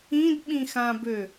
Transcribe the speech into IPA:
ĩdɓĩxãbø

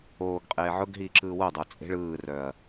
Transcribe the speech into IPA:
oːɡqʼeː ʕʊɡɦiː ǁɯːwodˤo t͡sʼe̤ɭ ɯːrœɐ̯

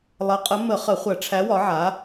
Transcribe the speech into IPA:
lˠɐ˨˦qʼə˨˦ mə˧˩˧ χə˧˩˧χʷɐ˧˩˧ ʈ͡ʂʰæ˨˦wɒ˨˦ʕa˨˦

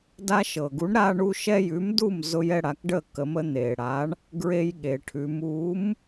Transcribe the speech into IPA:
da˦ʃɤ˩ɡu˨˥ɳ ɾa˦ɳu˦ ʃɛ˦ jʉ˨˥mdu˥˨m zʊ˦jɛ˦ɽa˩˧k ɖə˥˨kə˩˧mə˦ n̪e˩ɽa˨˥ɳ | ɡɹe˦jɠe˩ʈʰʉ˩˧m u˨˥m

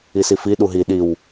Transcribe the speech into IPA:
isifi ɗuɦi ɗiw

